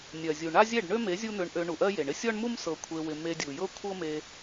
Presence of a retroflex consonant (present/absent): present